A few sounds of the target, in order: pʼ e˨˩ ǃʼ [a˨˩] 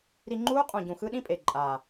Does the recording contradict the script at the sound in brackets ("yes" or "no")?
no